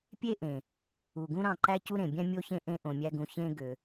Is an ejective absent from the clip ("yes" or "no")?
yes